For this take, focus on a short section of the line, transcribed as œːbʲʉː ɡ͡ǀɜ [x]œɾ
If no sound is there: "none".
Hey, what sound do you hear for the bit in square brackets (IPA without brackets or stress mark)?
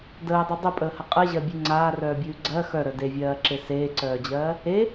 x